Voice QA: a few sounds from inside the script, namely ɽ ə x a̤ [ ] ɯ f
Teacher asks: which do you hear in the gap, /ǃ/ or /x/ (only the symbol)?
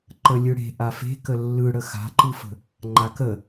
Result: ǃ